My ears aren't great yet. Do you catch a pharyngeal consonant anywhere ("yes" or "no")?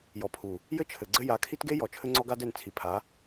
no